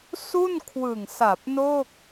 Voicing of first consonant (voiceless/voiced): voiceless